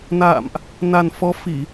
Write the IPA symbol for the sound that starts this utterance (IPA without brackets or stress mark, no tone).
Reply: n